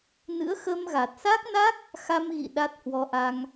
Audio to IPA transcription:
n ɨ̰˧˥ ə̯ x ə˧ m ɣ a˨˩ t̚ s a˦˥ k̚ n a˦˥ k̚ | x a˧ m ɣ ḭ˧˨ ɗ a˦˥ t̚ h w ɔ˧ ʔ a˧ ŋ

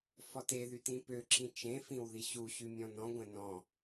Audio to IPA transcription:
f ɔ t e ð y t ĩ p ø ǁʰ ĩ t͡ʃ ẽ f ĩ w ð i ɕ u ɕ y mʲ ɔ̃ n ɔ̃ ɡʷ ɛ̃ n ɔ̃

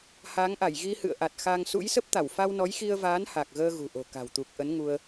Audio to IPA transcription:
h aː˨˦ ŋ ʔ a˧˩ j ɣ i˧ h ɨ̰˧˨ ə̯ ʔ a˨˩ t̚ x a˧ ŋ s ṵ˧˥ j s ə˦˥ p̚ t̪ a˧˩ w f a˧ w n ɔ˨˦ j x i˧ ə̯ v aː˨˦ n h a˨˩ k̚ ɣ əː˧ ɣ ṳ˨˩ ʔ o̤˨˩ k a̤˨˩ w t̪ u˨˩ k̚ ʔ ə˨˦ n ŋ u˧ ə̯

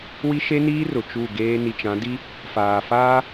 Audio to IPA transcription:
w i˦ ʃ e˦ n iː˦ r ʊ˨ t͡ʃ u˦˨ ɡ eː˦ n i˨ t͡ʃ ã˨˦ d i˦ | f aː˨ f aː˦

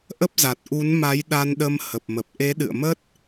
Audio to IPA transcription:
ʔ ə˦˥ p̚ z a˨˩ t̚ ʔ u˨˦ n m a˨˦ j ɗ a˧ n ɗ ə˧ m h ə˨˩ p̚ m ə˨˩ p̚ ʔ e˨˦ ɗ ɨ̰˧˨ ə̯ m ə˦˥ t̚

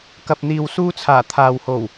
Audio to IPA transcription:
k ɐ˨ p̚ n̪ iː˨ w s uː˧ t͡sʰ aː˨˩ t̪ʰ aː˨ w h o˨˩ w

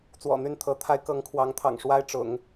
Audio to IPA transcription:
t͡s w ɔ̰˨˩ n̪ y˥˩ n t̪ʰ ɤ˧˥ t̪ʰ a˧˥ ɪ̯ k ɤ˧˥ ŋ kʰ w ɑ˧˥ ŋ t̪ʰ ɑ̰˨˩ ŋ ʂ w a˥ ɪ̯ ʈ͡ʂ ʊ̰˨˩˦ ŋ

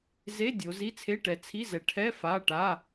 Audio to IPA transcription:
z e˧˥˧ dʲ o˨˦ z i˧˥˧ t͡sʰ e˧˥˧ ʈ ɛ˨˦ t͡sʰ i˧˥˧ z ɛ˨˦ ʈʰ ɛ˧˥˧ f a˧˥˧ ʈ a˧˥˧

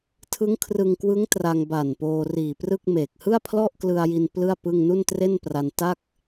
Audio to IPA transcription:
tʰ ɯ˦˥ ŋ kʰ r ɯ˧ ŋ k w ɯ˦˥ ŋ t r a˧ ŋ b aː˨˩ n p oː˧ r iː˨˩ p r ɯ˥˩ k̚ m eː˨˩ k̚ h ɯ˥˩ a̯ pʰ l ɔ˥˩ ʔ k l ɯ˧ a̯ j i˧ n p l ɯ˥˩ a̯ p ɯ˥˩ ŋ n u˥˩ n t r e˥˩ n p r a˧ n t a˥˩ k̚

